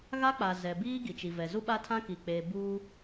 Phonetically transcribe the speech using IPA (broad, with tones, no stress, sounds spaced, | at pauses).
ɣ a˦ k͡p a˨ z ɛ˨ b iː˦ ɡ i˨ t͡ʃ i˨ v ɛ˨ z u˦ ɓ a˦ tʰ ã˦ k i˨ k͡p eː˨ b uː˦